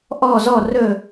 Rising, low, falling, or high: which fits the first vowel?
falling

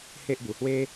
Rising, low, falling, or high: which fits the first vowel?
high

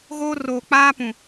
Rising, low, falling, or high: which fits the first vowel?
high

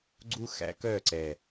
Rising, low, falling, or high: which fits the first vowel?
high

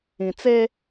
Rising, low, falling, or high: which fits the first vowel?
low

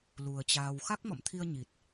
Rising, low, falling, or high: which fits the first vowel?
low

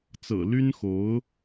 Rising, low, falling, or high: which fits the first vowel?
low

